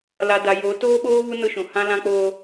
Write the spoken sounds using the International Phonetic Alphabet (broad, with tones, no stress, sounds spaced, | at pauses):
l a˨ d a˨ j o˨˦ t oː˦ ɓ oː˦ β u˦ n ʊ˦ ʃ ũ˨ h ã˦ l ã˦ k͡p oː˦